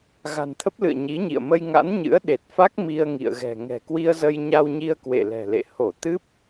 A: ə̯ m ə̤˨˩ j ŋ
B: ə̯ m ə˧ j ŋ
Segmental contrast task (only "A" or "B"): B